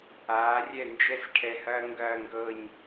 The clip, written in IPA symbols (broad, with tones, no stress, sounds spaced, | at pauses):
aː˩˧ rʲ ɛ˧˩ n d͡ʒ ɛ˧ s ʈʰ ɛ˧˩ h ɐː˥ ŋ ɡ ɐː˥˧ ŋ ɡ ɤ˥˧ ɲ